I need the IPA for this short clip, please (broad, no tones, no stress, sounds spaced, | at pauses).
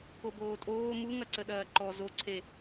k o b oː tʼ oː m u ŋ ɐ ǀ ə ɗ ɐː ǃ ɔ z o ǀʰ e